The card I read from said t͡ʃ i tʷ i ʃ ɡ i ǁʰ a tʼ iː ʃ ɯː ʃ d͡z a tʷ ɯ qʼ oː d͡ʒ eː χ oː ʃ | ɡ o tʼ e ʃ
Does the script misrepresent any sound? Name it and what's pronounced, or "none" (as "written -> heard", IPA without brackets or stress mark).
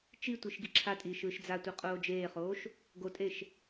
none